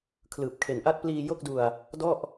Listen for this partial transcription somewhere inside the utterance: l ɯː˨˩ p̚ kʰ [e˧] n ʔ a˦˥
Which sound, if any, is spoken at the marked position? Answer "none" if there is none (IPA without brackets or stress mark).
e˨˩